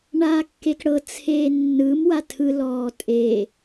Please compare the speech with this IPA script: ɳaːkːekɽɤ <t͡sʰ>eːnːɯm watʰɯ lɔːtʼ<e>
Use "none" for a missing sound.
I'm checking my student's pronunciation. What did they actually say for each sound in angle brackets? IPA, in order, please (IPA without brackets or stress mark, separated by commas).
t͡sʰ, e